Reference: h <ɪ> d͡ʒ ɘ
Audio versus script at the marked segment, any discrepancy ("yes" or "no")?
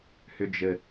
yes